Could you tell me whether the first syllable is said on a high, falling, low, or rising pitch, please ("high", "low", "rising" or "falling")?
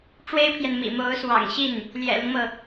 high